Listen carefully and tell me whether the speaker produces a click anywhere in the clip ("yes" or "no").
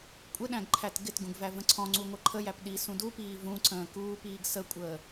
yes